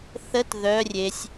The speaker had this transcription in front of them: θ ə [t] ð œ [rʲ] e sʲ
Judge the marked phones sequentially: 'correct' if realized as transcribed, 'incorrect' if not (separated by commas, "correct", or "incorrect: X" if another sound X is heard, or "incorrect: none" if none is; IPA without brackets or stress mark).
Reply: correct, correct